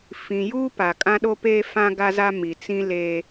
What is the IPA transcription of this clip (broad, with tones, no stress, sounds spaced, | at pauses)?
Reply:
f ĩ˨ j uː˦ p a˨ kʼ ã˦ ɗ o˦ p eː˦ f ã˦ ɡ a˦ z a˦ m i˨ t͡s ĩ˦ l eː˦